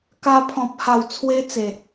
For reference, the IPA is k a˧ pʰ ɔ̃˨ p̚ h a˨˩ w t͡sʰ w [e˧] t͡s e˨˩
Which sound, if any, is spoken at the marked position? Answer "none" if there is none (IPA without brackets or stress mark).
e˦